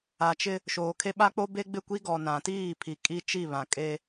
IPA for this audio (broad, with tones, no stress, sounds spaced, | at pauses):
a˨ t͡ʃ ɪ˦ | ʃ oː˨ kʰ e˦ ɓ a˦ k͡p o˦ b e˦ ɡ͡b ɪ˦˨ kʷ i˦ ɡ ɔ˨ n ã˨ t iː˦˨ pʰ i˨ kʼ i˦ t͡ʃ i˦˨ β ã˨ kʼ e˦